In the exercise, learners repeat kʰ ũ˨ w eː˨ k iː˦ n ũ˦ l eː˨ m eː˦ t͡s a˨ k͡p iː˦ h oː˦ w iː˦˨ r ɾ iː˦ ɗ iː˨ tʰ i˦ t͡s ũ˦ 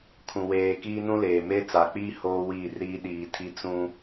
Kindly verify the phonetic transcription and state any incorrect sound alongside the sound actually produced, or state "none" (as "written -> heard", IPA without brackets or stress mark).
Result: none